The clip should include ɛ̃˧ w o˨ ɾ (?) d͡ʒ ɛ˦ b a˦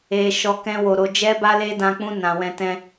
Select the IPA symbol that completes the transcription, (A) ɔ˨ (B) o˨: B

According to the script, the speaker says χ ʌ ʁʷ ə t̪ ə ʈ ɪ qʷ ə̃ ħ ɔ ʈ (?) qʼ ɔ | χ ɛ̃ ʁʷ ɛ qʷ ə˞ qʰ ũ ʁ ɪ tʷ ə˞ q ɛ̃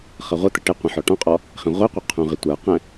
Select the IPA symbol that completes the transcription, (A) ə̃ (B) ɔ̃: B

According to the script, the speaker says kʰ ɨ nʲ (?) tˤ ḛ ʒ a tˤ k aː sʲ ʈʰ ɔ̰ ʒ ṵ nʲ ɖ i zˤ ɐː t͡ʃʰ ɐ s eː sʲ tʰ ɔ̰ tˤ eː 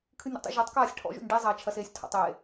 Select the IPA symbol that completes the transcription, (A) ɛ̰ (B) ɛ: A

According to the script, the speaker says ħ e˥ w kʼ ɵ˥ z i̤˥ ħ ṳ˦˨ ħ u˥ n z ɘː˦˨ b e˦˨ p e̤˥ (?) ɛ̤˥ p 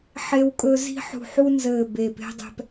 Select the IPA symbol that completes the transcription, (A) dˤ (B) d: A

